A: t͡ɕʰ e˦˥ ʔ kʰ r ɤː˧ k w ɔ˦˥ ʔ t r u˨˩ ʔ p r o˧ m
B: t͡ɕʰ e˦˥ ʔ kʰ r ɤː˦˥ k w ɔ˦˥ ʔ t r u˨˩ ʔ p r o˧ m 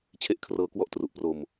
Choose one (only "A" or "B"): A